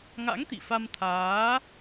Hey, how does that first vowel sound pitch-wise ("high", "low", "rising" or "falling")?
rising